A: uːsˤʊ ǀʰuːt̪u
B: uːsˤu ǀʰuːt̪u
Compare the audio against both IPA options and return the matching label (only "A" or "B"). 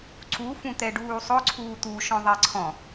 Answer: A